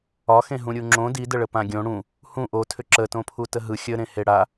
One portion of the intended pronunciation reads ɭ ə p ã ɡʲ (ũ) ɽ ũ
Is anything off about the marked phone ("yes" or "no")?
yes